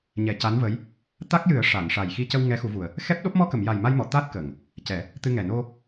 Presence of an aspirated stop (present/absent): absent